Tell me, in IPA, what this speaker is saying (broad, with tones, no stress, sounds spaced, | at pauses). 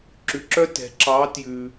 ǁ ʉ˧ ǁ œ˥ t ɛ̤˧˥ ǁ ɑ˧˥ t j ʉ˧